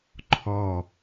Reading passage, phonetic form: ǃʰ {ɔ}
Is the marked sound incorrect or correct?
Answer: correct